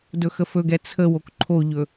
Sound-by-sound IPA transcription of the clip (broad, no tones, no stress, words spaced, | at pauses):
dɵxəfɵɡɛ t͡sʰəwok ǃʰoʎɵ